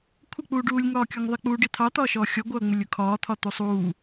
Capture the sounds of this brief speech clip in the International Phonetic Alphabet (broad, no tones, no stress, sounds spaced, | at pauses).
kʷʰ ə k͡p uː ɖ uː lʲ ŋ ɒː kʲ ɔ ŋ ðˤ ɪ k͡p uː ɖ i t̪ʰ ɑ t̪ ɒː ʃ ɔː xʲ ɔ ɡʷ ʌː ŋ͡m ɪ lʲ ʊ kʰ ɒː t̪ʰ ɒ t̪ u sˤ uː